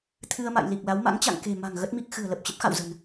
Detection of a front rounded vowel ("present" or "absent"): absent